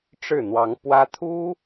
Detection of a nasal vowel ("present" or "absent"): absent